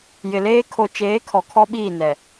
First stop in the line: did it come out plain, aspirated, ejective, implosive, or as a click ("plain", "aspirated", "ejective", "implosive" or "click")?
aspirated